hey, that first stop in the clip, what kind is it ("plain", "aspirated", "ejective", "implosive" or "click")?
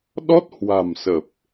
implosive